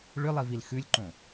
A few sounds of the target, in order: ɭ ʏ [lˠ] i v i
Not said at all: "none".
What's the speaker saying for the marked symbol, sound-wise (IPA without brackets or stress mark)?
lˠ